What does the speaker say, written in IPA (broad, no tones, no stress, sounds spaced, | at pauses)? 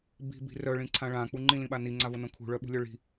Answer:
b i̤ b i̤ r œ ɭ ĩ ǀʰ ã ɭ ã k͡p u ŋ͡ǃ ĩ l ĩ ɓ a n i ŋ͡ǀ a v o n õ kʰ ṳ ɭ œ ɓ ṳ lʲ œ ɭ i̤